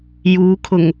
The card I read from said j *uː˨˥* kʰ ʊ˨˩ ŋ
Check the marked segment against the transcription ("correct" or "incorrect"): incorrect